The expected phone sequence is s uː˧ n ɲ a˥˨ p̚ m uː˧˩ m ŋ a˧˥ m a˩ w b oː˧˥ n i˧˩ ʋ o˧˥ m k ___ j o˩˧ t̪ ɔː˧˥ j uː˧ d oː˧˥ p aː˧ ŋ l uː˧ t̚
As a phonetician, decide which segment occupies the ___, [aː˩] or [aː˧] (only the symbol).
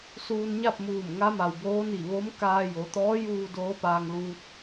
aː˧